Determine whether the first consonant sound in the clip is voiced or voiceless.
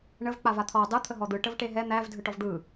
voiced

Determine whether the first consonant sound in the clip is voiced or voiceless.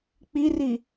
voiceless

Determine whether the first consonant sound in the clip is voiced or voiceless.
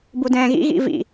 voiced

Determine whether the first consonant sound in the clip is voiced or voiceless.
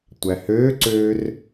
voiceless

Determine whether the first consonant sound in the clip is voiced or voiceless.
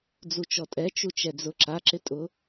voiced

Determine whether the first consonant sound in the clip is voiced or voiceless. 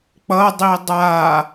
voiceless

